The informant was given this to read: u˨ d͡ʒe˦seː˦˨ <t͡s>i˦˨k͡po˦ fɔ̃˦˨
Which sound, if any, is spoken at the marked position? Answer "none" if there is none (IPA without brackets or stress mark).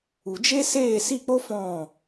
s